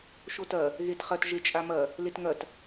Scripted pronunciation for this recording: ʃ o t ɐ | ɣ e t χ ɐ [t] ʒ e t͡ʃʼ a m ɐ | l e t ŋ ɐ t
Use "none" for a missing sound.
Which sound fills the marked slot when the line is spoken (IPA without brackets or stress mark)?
t